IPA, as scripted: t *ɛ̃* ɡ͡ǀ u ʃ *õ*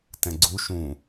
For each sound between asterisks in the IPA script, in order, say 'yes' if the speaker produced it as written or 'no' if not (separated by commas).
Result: yes, no